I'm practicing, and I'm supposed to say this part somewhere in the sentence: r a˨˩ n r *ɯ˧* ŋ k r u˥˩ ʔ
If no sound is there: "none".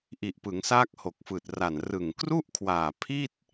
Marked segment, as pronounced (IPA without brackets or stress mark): ɯ˨˩